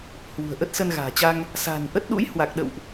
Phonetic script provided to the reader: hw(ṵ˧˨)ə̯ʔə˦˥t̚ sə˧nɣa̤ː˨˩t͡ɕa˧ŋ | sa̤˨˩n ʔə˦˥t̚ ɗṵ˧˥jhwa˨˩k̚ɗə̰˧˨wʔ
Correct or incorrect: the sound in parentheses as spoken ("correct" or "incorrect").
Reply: incorrect